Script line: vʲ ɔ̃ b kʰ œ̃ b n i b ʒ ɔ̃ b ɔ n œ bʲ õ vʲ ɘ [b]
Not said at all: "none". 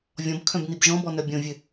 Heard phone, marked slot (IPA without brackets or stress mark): none